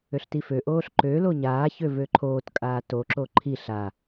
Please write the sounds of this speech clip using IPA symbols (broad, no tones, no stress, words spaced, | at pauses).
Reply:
øɬtiføʔoːɬ ǃølo ɲaːçø vøǃʰoːtkʼaː toǁo ǃʰi ɬa